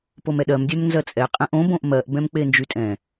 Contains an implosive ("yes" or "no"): yes